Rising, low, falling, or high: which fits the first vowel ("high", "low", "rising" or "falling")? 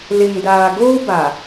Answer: low